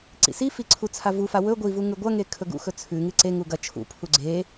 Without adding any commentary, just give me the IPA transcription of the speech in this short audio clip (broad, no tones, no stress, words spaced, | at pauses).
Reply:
ǀḭsifi ǀʰut͡sʰavufa wɵ ɡʷivu ŋʉɡʷɐŋe kʰɵɡṵxɵ t͡sʰʉŋɨ ǀeŋu ɡɐ t͡ʃʰṵpʰu ɡ͡ǀe